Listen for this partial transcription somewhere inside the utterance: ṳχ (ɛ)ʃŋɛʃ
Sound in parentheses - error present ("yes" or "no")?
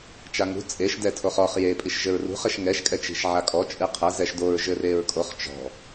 yes